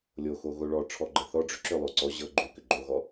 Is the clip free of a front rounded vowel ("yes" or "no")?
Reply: no